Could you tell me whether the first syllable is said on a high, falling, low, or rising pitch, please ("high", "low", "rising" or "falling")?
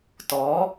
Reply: rising